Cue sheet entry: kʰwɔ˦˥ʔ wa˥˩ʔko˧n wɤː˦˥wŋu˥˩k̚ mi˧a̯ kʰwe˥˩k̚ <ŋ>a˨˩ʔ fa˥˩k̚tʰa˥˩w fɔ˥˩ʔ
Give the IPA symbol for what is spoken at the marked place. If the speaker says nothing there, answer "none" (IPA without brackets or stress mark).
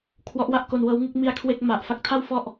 m